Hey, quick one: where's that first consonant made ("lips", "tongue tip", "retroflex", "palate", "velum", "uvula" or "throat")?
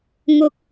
velum